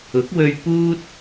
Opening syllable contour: rising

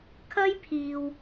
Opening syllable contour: high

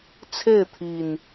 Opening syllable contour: falling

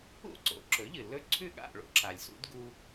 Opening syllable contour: falling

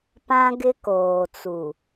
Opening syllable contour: high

